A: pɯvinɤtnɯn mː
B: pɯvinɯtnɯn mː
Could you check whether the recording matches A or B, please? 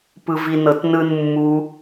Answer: A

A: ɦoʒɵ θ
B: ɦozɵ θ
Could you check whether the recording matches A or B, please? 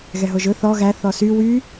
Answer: A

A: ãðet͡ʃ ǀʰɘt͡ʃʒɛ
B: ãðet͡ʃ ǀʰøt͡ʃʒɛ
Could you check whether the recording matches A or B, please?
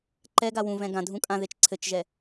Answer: A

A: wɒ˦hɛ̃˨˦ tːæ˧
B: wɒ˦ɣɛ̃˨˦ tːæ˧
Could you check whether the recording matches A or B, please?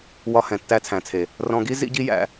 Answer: A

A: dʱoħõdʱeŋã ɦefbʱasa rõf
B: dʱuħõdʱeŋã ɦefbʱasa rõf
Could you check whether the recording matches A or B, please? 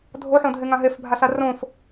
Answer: A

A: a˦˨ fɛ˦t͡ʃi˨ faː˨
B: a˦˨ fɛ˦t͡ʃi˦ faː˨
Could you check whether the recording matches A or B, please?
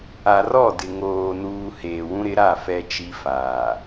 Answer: B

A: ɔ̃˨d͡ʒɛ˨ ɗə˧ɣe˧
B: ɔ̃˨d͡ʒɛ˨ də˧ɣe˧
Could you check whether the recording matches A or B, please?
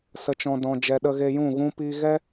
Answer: A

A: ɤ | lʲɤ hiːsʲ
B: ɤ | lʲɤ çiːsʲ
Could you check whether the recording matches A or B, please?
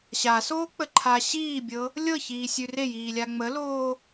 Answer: B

